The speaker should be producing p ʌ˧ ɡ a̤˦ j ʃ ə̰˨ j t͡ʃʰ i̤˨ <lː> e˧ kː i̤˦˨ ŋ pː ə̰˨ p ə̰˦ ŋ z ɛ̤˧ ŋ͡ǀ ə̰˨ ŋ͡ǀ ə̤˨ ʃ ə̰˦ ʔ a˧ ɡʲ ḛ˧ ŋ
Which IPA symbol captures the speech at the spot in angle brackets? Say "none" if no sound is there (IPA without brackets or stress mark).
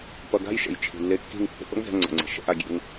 lː